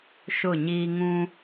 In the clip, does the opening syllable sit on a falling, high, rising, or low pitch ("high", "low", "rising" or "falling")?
falling